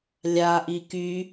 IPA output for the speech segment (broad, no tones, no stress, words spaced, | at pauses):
lʲaʔi ky